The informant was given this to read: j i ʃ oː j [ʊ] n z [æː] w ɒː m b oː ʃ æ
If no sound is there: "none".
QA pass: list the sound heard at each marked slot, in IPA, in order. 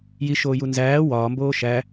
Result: u, æː

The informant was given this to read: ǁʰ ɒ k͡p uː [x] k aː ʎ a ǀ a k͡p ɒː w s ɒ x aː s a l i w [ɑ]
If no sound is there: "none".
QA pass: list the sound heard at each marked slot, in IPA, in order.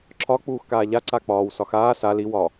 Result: x, ɒ

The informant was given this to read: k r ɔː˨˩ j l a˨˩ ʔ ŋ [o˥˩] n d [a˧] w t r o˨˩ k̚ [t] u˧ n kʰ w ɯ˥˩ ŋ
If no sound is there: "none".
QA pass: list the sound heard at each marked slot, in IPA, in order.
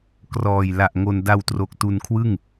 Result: o˧, a˧, t

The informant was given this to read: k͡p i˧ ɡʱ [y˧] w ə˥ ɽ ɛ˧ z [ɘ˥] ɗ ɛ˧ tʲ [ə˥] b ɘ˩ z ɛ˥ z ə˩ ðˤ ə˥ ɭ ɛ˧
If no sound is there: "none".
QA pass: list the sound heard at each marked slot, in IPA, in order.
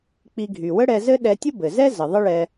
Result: y˩, ɘ˥, ə˥

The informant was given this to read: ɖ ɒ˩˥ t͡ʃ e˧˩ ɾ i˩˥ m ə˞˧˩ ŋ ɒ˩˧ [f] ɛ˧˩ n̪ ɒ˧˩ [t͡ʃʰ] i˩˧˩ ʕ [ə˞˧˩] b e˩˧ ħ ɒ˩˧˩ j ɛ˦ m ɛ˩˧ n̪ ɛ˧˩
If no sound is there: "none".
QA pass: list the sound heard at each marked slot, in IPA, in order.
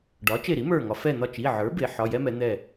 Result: f, t͡ʃ, ə˞˩˥

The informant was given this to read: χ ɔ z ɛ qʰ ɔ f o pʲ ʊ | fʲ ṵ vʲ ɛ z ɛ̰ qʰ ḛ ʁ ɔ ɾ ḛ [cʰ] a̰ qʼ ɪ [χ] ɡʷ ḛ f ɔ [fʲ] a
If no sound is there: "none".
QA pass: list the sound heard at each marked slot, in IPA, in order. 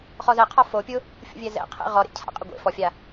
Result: cʰ, none, fʲ

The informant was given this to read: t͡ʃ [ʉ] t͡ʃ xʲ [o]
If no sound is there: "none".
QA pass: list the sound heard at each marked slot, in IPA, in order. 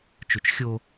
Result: ʉ, o

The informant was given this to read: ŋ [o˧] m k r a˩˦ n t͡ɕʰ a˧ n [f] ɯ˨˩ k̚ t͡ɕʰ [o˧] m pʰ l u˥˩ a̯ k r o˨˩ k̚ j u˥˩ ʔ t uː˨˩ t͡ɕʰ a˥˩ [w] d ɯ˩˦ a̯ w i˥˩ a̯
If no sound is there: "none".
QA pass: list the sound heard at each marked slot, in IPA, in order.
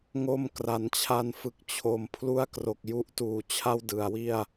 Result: o˧, f, o˨˩, w

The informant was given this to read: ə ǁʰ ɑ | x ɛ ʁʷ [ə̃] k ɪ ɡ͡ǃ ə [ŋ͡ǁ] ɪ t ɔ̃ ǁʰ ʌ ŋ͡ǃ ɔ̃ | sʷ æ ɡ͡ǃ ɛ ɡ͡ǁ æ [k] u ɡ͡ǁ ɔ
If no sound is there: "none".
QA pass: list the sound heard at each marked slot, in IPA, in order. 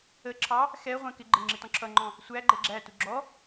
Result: ɛ̃, ŋ͡ǁ, t

